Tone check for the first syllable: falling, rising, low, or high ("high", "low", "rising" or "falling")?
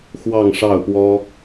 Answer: falling